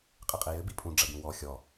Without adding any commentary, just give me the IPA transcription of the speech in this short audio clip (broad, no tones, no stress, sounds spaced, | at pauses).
qʼ ɨ qʼ e j ɘ b i pʼ ũ ɖ͡ʐ ɐ b ũ w ɔ xʲ ɔ